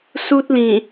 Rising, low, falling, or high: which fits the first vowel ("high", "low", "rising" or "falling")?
high